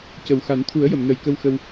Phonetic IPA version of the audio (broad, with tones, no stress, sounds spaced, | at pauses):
c ə˨˩ w x a˨˩˦ n t̪ʰ u˨˩˦ ə̯ j ə˨˩˨ m n ə˨˩ j k ə˧ w x ə˧ w